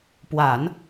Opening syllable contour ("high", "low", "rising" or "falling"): low